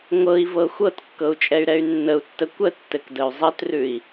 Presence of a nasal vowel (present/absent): absent